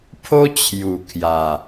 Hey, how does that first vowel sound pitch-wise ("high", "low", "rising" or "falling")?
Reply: high